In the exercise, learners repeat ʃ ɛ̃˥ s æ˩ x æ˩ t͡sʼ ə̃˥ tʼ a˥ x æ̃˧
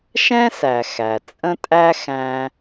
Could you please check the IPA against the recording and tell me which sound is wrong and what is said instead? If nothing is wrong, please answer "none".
a˥ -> æ˥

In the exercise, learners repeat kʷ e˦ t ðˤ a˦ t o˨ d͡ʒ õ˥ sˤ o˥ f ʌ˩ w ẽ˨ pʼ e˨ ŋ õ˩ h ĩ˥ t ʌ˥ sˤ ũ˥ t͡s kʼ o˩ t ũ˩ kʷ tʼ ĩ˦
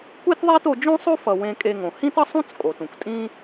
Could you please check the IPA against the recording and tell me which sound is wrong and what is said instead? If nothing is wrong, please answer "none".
pʼ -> kʼ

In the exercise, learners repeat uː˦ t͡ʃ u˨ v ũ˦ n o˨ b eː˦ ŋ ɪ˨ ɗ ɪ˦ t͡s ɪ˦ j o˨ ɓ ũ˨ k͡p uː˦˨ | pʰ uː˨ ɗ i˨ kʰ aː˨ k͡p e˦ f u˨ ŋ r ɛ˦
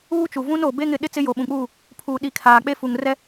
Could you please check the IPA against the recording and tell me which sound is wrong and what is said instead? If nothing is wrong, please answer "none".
eː˦ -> e˦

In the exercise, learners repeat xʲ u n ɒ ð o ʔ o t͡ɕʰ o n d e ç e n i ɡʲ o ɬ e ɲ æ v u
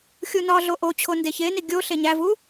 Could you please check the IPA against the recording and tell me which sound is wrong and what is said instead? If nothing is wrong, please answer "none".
ð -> ɮ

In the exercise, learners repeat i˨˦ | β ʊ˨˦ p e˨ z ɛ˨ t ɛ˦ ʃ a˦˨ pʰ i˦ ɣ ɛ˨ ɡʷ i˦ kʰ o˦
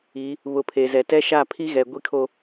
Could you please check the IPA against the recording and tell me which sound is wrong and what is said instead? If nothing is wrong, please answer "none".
p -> pʰ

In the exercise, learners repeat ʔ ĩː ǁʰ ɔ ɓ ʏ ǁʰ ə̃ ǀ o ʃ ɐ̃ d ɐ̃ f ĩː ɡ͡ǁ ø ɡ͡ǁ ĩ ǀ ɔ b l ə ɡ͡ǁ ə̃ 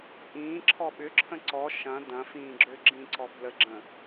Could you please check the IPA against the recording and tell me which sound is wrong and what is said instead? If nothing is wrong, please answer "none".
o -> ɔ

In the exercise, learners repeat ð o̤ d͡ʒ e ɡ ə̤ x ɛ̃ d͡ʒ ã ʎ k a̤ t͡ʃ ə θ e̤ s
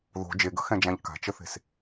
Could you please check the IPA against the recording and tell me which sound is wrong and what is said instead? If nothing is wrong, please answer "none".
none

